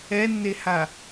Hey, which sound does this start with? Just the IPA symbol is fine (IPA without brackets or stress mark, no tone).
ɛ